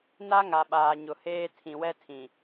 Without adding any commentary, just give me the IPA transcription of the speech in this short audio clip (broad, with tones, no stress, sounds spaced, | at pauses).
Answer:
n a˦ ŋ a˨ ɓ aː˨ ɲ ʊ˨ h eː˦ tʰ ĩ˨ w ɛ˦ tʰ ĩ˨